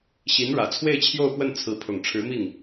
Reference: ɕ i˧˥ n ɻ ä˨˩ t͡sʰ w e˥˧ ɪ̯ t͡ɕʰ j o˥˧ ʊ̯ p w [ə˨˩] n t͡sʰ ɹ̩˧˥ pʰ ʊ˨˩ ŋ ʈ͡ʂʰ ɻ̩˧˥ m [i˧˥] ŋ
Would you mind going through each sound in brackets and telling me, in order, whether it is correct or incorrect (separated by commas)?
incorrect, incorrect